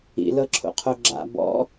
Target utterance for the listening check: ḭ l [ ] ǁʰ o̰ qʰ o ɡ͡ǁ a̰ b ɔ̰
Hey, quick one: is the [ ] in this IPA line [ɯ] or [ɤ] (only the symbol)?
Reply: ɤ